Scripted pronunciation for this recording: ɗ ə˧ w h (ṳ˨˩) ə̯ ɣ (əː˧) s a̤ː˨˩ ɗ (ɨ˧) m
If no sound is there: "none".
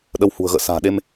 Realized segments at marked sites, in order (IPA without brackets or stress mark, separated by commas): ṳ˨˩, ə̰ː˧˨, e˧